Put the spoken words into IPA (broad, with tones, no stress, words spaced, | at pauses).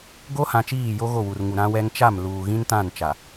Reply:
ɡo˦hã˨t͡ʃiː˦˨ jo˦ ɣo˦˨wu˨rŋu˨ ɾã˦wɛ˦ŋ t͡ʃa˦˨m luː˨ɣĩ˦ntã˦˨n t͡ʃa˨